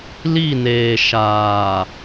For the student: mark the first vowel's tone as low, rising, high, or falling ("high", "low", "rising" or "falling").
falling